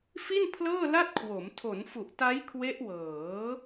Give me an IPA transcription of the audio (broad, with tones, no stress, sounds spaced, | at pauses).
f i˥˩ n pʰ l ɤː˥˩ l a˥˩ t̚ kʰ w o˩˦ m tʰ o˩˦ n f u˨˩ ʔ t a˦˥ j kʰ w e˦˥ ʔ w ɤː˩˦